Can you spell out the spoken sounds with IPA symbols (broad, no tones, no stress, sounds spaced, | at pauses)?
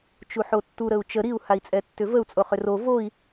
t͡ʃ u ħ o tː u ɾ ə u̯ t͡ʃ ə ɾ i u̯ h a i̯ t͡sʼ ɛ tː ʏ v ə u̯ t͡sʼ o χ ʏ r o v o i̯